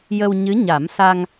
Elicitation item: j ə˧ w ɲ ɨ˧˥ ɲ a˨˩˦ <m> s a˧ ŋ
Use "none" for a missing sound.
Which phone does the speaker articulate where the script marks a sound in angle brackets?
m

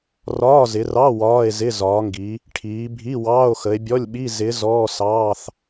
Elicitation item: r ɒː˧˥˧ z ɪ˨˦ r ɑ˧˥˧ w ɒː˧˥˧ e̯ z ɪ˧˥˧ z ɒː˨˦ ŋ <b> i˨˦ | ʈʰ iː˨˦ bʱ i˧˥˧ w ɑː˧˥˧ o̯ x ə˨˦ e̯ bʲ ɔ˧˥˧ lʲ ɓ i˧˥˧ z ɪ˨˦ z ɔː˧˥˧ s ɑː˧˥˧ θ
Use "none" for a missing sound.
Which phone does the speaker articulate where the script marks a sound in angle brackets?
ɡ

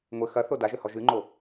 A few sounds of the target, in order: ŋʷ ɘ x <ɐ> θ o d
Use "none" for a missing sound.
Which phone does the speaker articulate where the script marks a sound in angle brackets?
ɐ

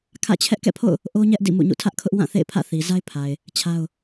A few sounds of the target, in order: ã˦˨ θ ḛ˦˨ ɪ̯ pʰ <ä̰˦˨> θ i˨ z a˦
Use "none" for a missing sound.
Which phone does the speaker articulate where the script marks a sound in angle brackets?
ä̰˦˨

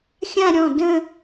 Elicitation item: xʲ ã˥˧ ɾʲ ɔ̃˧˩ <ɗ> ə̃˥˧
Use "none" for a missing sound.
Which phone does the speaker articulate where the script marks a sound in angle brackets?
d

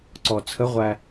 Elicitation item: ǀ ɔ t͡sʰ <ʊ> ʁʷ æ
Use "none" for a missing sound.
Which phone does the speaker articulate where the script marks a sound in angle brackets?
ə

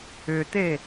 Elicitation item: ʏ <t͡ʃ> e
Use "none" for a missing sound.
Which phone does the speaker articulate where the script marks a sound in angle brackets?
t̪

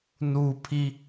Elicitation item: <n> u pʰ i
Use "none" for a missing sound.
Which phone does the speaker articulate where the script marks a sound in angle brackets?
n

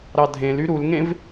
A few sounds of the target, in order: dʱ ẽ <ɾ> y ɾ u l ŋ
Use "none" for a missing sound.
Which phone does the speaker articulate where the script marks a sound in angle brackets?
l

